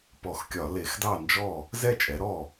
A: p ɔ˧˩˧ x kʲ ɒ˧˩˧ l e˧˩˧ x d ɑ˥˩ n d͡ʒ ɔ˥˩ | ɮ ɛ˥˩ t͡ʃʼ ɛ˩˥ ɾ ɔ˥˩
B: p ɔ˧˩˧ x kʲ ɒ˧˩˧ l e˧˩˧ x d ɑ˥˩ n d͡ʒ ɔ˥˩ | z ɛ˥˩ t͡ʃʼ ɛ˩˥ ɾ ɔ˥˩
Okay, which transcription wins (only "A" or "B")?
B